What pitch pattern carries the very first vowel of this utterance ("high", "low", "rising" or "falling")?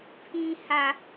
high